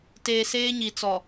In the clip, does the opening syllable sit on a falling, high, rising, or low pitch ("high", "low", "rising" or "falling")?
low